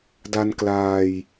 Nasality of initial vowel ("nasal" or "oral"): oral